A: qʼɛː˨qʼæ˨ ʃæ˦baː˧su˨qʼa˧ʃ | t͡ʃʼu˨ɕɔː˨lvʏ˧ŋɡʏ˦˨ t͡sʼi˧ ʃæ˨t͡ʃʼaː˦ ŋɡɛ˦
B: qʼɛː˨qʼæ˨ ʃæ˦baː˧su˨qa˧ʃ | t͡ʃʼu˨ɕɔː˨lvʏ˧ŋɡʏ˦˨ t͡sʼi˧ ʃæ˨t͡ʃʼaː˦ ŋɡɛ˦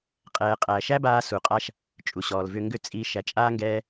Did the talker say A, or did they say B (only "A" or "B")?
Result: A